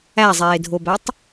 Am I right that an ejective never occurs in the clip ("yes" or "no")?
yes